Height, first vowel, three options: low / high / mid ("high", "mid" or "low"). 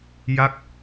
low